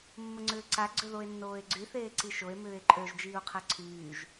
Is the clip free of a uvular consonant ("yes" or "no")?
no